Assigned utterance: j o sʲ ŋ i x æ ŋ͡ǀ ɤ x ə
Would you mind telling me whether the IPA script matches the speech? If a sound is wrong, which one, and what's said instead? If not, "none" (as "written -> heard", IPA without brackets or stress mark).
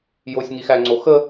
ɤ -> o